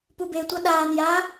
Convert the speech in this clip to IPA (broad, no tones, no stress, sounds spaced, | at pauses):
p u b e tʷ ʌ ɗ aː n j a